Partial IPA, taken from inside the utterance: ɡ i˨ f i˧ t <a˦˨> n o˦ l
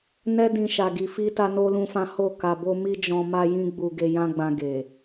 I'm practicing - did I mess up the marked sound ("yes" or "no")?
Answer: yes